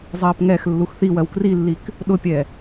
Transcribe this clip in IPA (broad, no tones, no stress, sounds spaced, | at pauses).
zˤ ɜː p ŋ ɛ x lː u x θ i w ɜ w k r i lː i k | ɗ ʊ pʲ ɛ